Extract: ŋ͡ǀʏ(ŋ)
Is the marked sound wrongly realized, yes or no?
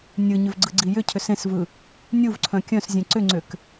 yes